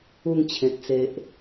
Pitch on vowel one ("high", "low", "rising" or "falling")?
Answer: falling